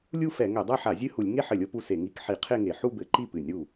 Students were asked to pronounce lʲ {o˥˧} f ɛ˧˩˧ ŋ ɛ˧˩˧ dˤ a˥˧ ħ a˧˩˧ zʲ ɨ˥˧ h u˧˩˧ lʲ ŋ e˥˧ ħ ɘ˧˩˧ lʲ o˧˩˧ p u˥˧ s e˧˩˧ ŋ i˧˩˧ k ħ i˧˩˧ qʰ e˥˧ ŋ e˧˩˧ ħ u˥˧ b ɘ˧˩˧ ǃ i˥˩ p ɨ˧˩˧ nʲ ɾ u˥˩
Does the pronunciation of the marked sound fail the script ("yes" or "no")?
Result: yes